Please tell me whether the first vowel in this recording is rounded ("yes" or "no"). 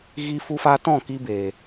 no